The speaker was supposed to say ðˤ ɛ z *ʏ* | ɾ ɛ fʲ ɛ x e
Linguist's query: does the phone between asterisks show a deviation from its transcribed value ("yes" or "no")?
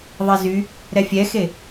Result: yes